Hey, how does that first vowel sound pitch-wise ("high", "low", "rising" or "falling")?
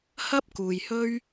high